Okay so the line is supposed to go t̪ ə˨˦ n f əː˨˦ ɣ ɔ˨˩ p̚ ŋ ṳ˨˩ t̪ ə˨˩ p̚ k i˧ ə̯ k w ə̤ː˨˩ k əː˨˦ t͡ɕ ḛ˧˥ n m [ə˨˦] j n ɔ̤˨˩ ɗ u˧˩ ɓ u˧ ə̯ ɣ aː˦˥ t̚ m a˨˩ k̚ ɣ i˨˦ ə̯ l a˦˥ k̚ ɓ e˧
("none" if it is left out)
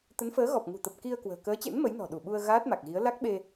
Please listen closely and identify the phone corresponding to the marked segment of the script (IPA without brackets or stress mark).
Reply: ə˨˦